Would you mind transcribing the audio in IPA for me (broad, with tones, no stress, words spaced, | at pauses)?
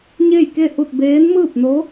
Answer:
ɲe˥˨jke˥˨hu˥˨t̚ beː˧˥nmɯː˥˨p̚no˧˥